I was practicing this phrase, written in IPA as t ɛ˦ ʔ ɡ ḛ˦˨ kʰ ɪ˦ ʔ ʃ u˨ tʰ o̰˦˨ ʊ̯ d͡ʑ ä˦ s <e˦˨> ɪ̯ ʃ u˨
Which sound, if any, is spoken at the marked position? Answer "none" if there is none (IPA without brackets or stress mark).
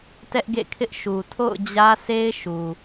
e˦